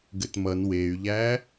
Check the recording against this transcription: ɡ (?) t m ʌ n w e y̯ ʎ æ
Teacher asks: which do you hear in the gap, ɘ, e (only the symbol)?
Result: ɘ